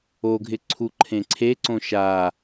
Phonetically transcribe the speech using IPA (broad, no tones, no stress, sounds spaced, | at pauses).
o ɡʱ ɪ ǀʰ u ǃʰ ẽ ǀʰ e ǀ õ ʃ a